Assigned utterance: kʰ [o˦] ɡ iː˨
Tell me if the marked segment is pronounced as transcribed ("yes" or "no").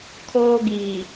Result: no